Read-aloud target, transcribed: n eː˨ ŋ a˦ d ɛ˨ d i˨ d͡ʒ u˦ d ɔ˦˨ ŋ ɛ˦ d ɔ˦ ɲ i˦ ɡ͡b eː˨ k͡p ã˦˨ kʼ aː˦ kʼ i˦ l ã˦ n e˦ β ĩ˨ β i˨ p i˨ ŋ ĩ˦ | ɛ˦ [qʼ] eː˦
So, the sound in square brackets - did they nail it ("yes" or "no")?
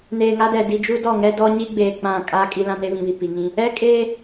no